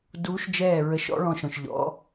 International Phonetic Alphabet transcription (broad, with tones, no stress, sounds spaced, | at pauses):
d uː˧˥ ʃ d͡ʒ ɛː˦˨ ɹ ə˧˥ ʃ ɔ̰˧˥ ɭ ɔ̃˦˨ ʃ ɔ̃˦˨ ʃ ʎ ɔ̰˧˥